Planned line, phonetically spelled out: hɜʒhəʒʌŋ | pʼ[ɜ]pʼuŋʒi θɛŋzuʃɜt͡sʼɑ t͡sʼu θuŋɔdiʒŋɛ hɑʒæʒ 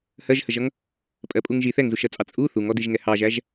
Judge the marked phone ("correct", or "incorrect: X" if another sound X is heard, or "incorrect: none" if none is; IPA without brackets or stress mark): correct